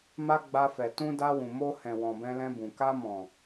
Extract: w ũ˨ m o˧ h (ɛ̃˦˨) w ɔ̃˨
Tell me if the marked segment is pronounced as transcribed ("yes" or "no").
no